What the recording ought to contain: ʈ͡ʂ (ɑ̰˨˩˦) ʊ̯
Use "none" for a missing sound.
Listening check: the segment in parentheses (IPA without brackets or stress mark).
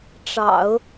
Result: ɑ̰˨˩˦